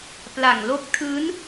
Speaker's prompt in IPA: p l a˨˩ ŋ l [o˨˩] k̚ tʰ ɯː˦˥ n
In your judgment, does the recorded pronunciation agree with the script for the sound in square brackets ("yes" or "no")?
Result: no